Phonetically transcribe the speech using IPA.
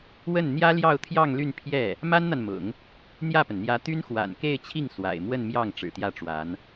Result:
wə˥˩n n̪jä˥ljɑ˥˧ʊ̯t̪ʰjɑ˥˧ŋ ly˥˧npʰjɛ˥˩ | ma˥nn̪a˨n mʊ̰˨˩˦ŋ | n̪jä˥˩pə˩nn̪jä˧˥ t̪y˥nxwa̰˨˩n ke˥˧ɪ̯t͡ɕʰi˥˩ŋ swa̰˨˩ɪ̯ mwə˥˧n mjɑ˥˩ŋ ʈ͡ʂɻ̩˨˩t̪jä˥˩ʈ͡ʂwa˧˥n

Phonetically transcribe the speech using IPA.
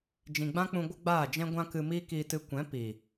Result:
d͡ʒĩ˨ɡ͡bã˦k͡pũ˧ ɡʷə˦ɡ͡baː˦˨d͡ʒɛ̃˦ ɡʷã˦kɨ˧ miː˦kiː˧tɨ˧ kʷɛ̃˨˦ piː˨

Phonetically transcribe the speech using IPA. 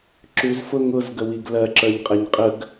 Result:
ǁʉzfʊ ŋʊzɡəwiɡ lɜǁə˞ɲqʼɛɲ qʼəɡ

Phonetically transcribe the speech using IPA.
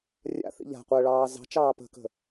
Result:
rʲa̰θḭ ʎa̤qʷəːɭɑː zɑ̤t͡ʃɑː pə̤kə̤

